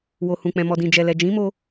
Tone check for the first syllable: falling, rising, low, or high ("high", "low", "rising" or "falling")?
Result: low